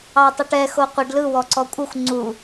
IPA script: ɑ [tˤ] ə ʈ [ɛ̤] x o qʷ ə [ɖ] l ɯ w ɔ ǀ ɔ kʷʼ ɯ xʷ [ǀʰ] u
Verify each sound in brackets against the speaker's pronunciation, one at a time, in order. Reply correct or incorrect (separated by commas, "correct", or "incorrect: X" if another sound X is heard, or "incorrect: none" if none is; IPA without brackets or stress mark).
correct, incorrect: ɛ, correct, incorrect: ŋ͡ǀ